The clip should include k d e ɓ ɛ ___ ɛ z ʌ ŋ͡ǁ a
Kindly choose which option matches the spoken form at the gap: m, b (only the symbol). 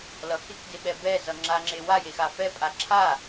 b